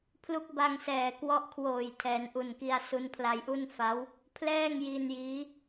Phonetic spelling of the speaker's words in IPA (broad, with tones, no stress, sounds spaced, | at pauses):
pʰ l u˦˥ k̚ b a˧ ŋ s ɛː˨˩ k w ɔ˦˥ ʔ kʰ w oː˨˩ j tʰ ɛː˩˦ n ʔ u˨˩ n k i˧ a̯ s u˧ n pʰ l a˧ j ʔ u˥˩ n f a˦˥ w | pʰ l ɛː˥˩ ŋ j i˧ n j iː˦˥